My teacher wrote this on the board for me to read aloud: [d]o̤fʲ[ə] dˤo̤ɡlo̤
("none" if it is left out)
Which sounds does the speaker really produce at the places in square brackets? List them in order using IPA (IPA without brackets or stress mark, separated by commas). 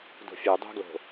d, œ